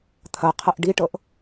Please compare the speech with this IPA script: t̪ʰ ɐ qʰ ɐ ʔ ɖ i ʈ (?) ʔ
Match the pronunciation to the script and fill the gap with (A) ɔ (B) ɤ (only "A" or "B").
B